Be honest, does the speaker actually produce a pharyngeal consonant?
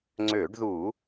no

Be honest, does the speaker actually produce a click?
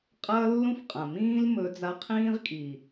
no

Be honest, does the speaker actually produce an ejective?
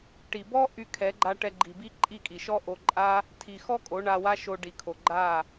yes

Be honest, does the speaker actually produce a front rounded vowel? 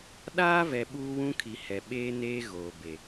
no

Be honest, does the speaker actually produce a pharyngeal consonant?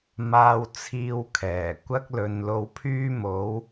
no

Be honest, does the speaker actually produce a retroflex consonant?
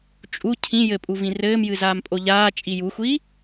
no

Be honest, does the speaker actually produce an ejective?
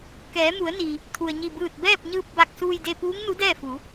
no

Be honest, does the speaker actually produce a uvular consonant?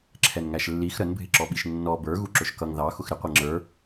yes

